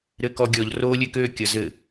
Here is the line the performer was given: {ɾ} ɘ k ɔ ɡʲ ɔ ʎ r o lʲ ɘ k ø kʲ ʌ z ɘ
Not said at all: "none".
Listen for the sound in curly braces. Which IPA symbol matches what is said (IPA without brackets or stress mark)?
ɾ